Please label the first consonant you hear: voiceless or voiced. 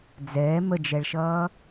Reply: voiced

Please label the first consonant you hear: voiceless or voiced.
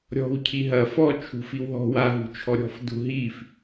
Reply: voiced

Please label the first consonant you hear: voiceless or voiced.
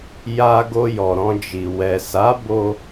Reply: voiced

